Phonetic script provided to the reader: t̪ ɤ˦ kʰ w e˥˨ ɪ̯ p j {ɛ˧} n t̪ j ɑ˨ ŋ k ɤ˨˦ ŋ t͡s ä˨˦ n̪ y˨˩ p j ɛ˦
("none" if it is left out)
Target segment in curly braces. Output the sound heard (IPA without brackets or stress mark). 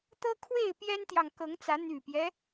ɛ˦